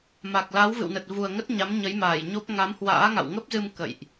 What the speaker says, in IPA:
m a˨˩ k̚ l a˨˦ w v ɨ̰˧˨ w n ə˨˩ t̚ v u˨˩ ə̯ ŋ ə˦˥ t̚ ɲ a˨˦ m ɲ ə˨˦ j m aː˧˩ j ɲ o˦˥ p̚ ŋ a˨˦ m h w a̰ː˧˥ ŋ a̰˧˨ w ŋ ə˦˥ p̚ z ɨ˧ m k ə̰˧˨ j ʔ

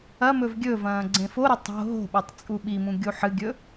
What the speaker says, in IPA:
ɐ m ɵ v ɡʲ ɵ v ɐ̃ː ɡ͡ǀ ẽ f o ɾ ɵ tˤ o̤ ɦ o̤ ɓ o tˤ t͡sʼ u ɓ i m ũ ɡʲ u ħ ɨ ɡʲ ɵ

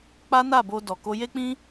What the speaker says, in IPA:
k͡p a˦ n a˦˨ b o˧ d ɔ˨ k o˧ j e˦ k͡p ĩ˦

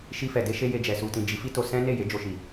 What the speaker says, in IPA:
ʃ i˧ f ɛ˨ d e˧ ʃ e˧ j e˨ d͡ʒ ɛ˨ s u˨ t ĩ˨ d͡ʒ i˨˦ f i˦ t o˧ s ɛ̃˦ n e˦˨ j e˨˦ d͡ʒ o˧ ʃ i˨

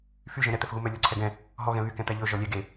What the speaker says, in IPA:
f y ʒ ɛ̃ ɾ ɛ t̪ ɛ f ɣ u m œ lʲ ɔ ǀʰ ɛ ɡ ɛ̃ | ɦ ɔ ɣ ɛ̃ β y k ɛ̃ t̪ æ ʎ ɵ ʒ ɔ lʲ ɛ ɡ e

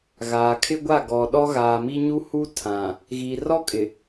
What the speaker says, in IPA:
ɣ aː˨ kʰ ɪ˦ ɡʷ a˦˨ ɡ ɔ˨ ɗ ɔ˦ ɣ aː˨ m i˦ ɲ u˦ h u˦ tʰ ã˨ | ɣ i˨ r ɔ˦ kʼ ɪ˨

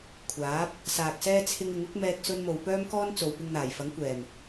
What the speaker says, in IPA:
kʷʰ aː˨˥ p̚ | s aː˨ k̚ s ɛː˥ t͡sʰ ɪ˥ ŋ ɪ˨˥ ŋ ʊ˨˥ k̚ m ɛː˧ k̚ s ɵ˥ n m o˧ w p œː˥ m k ɔː˥ n t͡s o˨ w p ɪ˧ ŋ n̪ aː˨˩ j f ɐ˨˥ ŋ kʷ ɛː˨˩ m

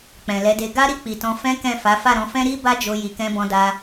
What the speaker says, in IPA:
k͡p ɛ̃˨ l ɛ˨˦ d e˧ ɡ a˦ ɾ i˦˨ k͡p i˨ t ɔ̃˧ f ɛ̃˦ k ɛ̃˦˨ f a˨˦ f a˦˨ ɾ ɔ̃˧ f ɛ̃˦ ɾ i˦ b a˦ d͡ʒ o˧ j i˨ k ɛ̃˧ b ɔ̃˧ d a˧

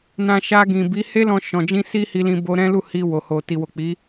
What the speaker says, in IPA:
n ã˧ ʃ a˧ ɡ ĩ˨ b i˨˦ h e˦ l ɔ̃˧ ʃ ɔ̃˨ d͡ʒ ĩ˧ s i˦ h i˧ l ĩ˧ b o˧ ɾ ɛ̃˦ l u˦˨ h i˧ w o˨ h o˨ t i˨ w o˨ k͡p i˨˦

